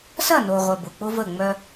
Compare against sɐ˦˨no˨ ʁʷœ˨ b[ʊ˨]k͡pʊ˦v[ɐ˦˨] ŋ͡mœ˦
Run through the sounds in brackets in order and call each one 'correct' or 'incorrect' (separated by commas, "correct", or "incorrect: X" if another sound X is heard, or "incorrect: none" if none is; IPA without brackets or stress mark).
correct, incorrect: ə˦˨